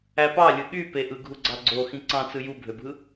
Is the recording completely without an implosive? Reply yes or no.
no